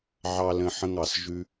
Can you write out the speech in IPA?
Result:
ʕɑ˥lə̃˥ħə̃˥ŋɑ˧s ʒʉ˥

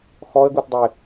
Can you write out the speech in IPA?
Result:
xɔə̯ɡutdˤɘɪ̯

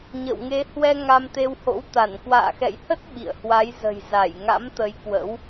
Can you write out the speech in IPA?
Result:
ɲə̰˧˨wŋe˨˦ hwɛ˧ ŋa˧mt̪e˧who̰˧˥wt̪a˧˩n kwa̰ː˧˨xɛ̰˧˨jhə˦˥t̚ ɓḭ˧˨ə̯hwa˨˦j zə̤˨˩j za˧˩j ŋa̰˧˥mt̪ə˨˦j kwə̰˧˥w

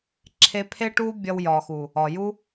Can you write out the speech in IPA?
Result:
ǁʰe˧pʰe˦ʈu˦ bʲɒ˧wjɒ˨xu˨ | ɒ˨ju˦

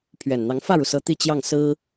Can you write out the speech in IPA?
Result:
pʰɥɛ˨˩nn̪ɑ˧˥ŋ fä˥˩ɻu˩sɤ˧˥ t̪i˥˧t͡ɕjɑ˥˩ŋ sɹ̩˥

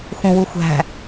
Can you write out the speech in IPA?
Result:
xũwuxʷæ̤

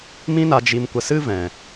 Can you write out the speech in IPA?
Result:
mĩ˦na˧ d͡ʒi˧mkʷə˧sɨ˦vɛ̃˨

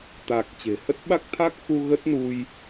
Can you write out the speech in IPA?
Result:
t̪a˨˩k̚ t͡ɕe̤˨˩hə˦˥t̚ ɓa˦˥k̚t̪ʰa˦˥k̚xu˧ ɣə˦˥t̚nu˧j

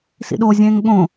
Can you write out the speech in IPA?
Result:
sḭɗozʲẽːŋ ɠõ

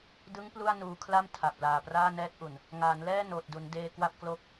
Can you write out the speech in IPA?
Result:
dɯ˦˥ŋ plu˥˩a̯nuː˧kʰla˥˩m tʰa˨˩p̚laː˨˩praː˥˩nɛː˦˥t̚ ʔu˨˩n | ŋaː˩˦nlɛː˥˩ noː˨˩t̚du˩˦ndeː˧ kwa˥˩p̚klo˥˩k̚

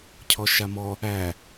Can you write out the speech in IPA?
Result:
cʰɔʃamɔ | æ

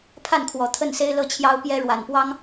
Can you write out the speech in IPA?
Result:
pʰa˥˩nkʰwɔ˨˩ t̪ʰə˥˩nse˥ɪ̯ lɤ˥˩t͡ɕʰjɑ˥ʊ̯ pjɛ˥ ɻwa˨˩npwɑ˥ŋ

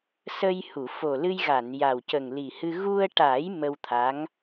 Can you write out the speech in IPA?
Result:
sə˧jhu˨˩˨ fo˨˩lɨ˧jɣa˨˩˨nja˨˩w cə˨˩ŋli˨˩hɨ˧ ɣu˧ə̯ʈa˨˩˦j mə˧wt̪ʰa˧˥ŋ

